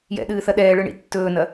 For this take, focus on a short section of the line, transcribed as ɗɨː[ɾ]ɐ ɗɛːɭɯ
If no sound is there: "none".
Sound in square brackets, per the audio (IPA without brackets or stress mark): θ